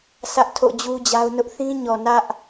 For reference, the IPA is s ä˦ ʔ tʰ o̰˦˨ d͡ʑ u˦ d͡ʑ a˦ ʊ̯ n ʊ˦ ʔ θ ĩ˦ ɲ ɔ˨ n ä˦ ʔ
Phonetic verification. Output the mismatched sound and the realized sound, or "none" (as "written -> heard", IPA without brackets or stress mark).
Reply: none